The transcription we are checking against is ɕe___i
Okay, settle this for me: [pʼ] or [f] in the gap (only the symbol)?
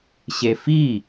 f